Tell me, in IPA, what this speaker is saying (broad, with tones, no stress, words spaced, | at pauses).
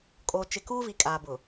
kʼo˨ t͡ʃɪ˨kuː˦vi˨ kʼaː˨bʊ˨